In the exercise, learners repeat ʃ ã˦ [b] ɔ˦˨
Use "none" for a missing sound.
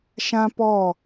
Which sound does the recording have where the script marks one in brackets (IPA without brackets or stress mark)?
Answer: p